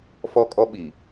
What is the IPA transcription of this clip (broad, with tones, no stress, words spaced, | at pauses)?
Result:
fɔ˦kʼɔ˦ɓi˨